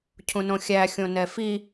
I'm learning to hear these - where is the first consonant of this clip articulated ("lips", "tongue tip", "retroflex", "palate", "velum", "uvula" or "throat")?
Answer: palate